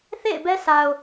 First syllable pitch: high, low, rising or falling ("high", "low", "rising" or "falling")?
falling